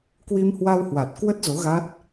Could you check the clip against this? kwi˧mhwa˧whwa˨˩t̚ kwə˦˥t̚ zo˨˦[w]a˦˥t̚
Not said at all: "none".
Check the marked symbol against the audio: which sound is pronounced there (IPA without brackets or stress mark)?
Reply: ɣ